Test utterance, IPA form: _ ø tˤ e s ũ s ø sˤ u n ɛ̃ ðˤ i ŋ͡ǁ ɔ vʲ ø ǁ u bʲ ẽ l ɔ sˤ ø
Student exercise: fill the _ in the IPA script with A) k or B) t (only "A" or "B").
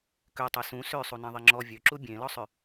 A